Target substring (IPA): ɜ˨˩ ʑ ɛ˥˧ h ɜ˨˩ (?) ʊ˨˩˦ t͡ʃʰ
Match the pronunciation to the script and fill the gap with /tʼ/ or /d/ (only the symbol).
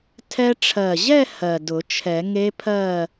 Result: d